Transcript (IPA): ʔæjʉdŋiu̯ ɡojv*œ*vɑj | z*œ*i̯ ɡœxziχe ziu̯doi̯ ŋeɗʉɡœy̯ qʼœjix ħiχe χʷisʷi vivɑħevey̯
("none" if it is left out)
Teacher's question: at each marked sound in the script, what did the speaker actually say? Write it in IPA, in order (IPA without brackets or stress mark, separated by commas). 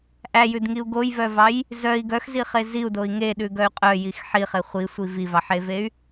œ, œ